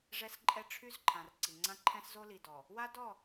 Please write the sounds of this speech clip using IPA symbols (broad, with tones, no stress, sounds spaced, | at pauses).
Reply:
ʐ ɛ˦ s ǃʼ ɛ˦ ʈ͡ʂʰ y˦ z ǃʰ ã˨ r ǀ i˨ ŋ͡ǀ ã˦ ǃʰ ɛ̃˦ s z o˦ l i˨ d ɔ˨ | w a˦ d ɔ˦˨